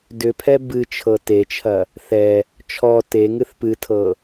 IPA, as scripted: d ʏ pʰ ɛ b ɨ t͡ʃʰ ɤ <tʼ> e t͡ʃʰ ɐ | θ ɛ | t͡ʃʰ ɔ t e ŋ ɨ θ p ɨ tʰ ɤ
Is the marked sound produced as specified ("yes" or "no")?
no